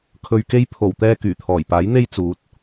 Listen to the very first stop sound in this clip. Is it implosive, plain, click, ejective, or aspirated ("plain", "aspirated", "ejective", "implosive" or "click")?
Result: aspirated